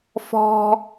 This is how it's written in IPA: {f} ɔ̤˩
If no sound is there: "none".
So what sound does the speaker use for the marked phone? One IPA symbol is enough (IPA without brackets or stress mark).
f